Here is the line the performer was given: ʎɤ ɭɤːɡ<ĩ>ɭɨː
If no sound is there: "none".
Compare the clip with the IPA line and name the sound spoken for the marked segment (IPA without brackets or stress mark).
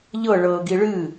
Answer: i